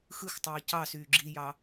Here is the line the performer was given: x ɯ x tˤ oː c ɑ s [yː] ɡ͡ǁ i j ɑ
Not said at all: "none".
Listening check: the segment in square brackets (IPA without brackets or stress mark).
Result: yː